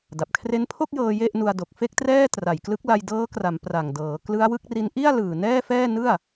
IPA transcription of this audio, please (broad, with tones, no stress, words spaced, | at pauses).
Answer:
da˨˩p̚kʰre˦˥npʰo˥˩k̚jɤː˧ je˥˩ʔnu˧a̯ do˨˩k̚fe˥˩k̚trɛː˥˩ tra˨˩jklɯ˦˥k̚la˧j dɤː˦˥kra˩˦m pra˨˩ŋdɤː˩˦ klɯ˦˥a̯wɯ˦˥k̚ri˦˥n ʔi˥˩a̯ lɯː˨˩nɛː˥˩fɛː˥˩ nɯ˥˩a̯